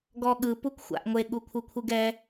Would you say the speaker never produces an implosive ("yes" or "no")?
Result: no